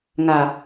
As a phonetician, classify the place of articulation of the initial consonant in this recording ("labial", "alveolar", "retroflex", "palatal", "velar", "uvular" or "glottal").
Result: velar